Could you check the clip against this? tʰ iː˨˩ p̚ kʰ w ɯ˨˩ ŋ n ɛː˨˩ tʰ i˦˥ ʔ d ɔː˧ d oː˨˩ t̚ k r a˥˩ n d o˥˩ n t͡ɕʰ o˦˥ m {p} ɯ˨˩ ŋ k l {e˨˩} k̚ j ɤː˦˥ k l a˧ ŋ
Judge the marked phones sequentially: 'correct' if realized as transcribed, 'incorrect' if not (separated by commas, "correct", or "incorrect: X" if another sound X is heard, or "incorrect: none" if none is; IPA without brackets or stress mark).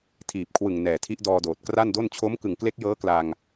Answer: incorrect: k, incorrect: e˦˥